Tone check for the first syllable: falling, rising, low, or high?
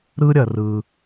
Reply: high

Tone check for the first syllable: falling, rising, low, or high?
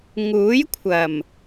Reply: rising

